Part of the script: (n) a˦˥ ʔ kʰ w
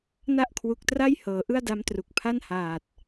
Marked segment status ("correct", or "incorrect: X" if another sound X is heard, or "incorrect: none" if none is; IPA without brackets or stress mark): correct